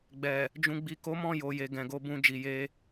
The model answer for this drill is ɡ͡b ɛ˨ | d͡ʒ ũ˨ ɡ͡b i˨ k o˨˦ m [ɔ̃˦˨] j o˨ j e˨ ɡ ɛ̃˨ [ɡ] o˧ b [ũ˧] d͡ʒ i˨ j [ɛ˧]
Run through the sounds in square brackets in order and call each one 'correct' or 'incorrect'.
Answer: correct, correct, correct, incorrect: e˧

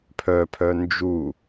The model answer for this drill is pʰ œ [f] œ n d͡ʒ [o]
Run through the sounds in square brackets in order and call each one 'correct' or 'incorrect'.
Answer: incorrect: pʰ, incorrect: u

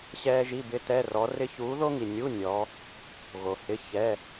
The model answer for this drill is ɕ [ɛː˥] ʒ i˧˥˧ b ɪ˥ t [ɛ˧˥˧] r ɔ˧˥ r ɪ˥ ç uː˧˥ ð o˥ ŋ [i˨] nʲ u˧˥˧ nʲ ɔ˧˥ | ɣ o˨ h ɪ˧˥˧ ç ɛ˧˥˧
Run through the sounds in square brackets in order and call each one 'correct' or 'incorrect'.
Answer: correct, correct, correct

